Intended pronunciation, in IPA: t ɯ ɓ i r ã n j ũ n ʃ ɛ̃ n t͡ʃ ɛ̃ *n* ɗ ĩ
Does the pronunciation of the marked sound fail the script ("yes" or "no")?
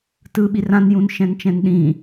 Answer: no